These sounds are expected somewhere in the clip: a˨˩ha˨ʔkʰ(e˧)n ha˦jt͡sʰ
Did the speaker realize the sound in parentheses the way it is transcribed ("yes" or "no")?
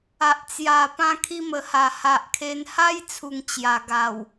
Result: yes